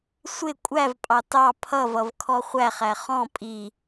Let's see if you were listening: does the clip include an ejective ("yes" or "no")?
yes